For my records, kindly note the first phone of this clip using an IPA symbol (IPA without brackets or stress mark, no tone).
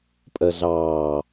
pʼ